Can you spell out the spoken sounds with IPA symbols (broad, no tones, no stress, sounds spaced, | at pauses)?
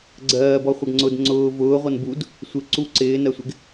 ɡ͡ǀ ɜː b ɔ χʷ ʌ ɡ ŋ͡ǀ ʊ d ŋ͡ǀ ʊː v ʊː ʁʷ ʌ n b u d | sʷ ɪ ǀ u ǀ ɪː n ɜ sʷ ɪ ɡ